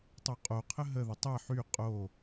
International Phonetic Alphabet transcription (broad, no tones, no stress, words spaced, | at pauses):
tˤoqʼoqʰə ɦəðə tˤɛ ħy qʼo